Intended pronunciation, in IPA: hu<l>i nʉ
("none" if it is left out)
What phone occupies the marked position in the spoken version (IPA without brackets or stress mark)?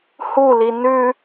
l